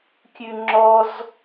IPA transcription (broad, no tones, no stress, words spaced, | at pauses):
kʲʉŋ͡ǁɔz